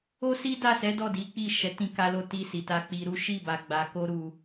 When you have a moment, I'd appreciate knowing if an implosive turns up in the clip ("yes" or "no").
no